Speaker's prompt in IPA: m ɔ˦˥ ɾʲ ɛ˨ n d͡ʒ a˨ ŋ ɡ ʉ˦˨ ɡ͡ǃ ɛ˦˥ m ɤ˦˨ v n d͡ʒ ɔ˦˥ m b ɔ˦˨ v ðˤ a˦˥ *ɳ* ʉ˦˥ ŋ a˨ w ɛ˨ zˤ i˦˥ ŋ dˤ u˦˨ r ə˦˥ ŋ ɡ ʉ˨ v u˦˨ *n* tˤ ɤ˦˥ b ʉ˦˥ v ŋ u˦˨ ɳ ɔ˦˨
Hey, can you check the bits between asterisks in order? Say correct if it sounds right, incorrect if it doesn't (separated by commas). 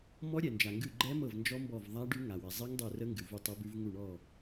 incorrect, incorrect